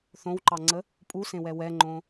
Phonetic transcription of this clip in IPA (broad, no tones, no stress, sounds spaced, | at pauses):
θ õ w ǃ ɑ ŋ͡ǀ ə | pʼ u s ẽ w ɛ w ɛ ŋ͡ǃ õ